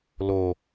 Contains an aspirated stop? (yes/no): no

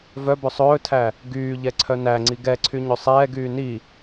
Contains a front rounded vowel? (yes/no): yes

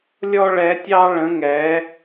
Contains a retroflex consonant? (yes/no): yes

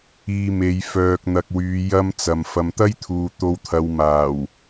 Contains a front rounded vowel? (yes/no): yes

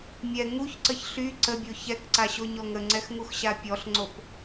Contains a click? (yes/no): yes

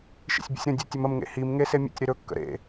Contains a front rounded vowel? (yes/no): no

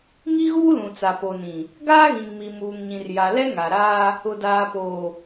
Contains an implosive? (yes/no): no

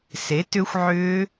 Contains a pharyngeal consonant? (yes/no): yes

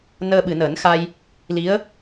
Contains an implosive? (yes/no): yes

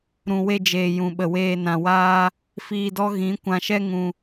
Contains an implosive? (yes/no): yes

